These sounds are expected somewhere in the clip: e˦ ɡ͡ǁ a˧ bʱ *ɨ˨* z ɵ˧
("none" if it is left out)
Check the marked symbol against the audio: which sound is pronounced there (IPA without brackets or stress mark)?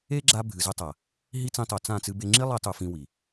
ɨ˨